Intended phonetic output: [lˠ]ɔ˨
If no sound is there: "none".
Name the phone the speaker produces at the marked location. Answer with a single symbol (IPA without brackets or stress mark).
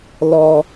l